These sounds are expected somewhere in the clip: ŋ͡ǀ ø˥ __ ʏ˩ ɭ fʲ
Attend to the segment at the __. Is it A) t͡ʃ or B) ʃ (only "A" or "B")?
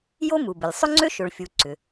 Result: B